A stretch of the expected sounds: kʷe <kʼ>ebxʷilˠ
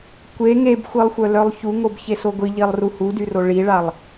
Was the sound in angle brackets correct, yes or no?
no